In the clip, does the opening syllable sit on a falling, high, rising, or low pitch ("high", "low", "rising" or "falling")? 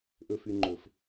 high